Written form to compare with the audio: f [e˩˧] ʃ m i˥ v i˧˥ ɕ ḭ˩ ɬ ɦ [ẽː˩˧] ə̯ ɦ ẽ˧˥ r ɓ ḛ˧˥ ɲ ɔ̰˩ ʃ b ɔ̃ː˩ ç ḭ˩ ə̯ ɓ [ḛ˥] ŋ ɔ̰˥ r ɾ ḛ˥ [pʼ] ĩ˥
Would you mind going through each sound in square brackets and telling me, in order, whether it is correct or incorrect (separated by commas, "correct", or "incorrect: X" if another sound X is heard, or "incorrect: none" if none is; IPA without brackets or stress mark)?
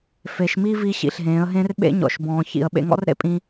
correct, correct, incorrect: ḛ˧, correct